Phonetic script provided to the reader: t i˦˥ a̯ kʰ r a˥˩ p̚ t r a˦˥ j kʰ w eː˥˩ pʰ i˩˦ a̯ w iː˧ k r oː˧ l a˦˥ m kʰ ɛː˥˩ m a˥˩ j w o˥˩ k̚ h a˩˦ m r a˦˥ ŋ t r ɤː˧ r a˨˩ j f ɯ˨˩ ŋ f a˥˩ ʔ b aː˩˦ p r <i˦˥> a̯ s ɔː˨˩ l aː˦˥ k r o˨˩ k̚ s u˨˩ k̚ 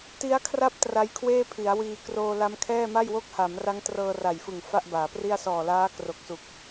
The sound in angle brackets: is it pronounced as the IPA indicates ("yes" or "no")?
no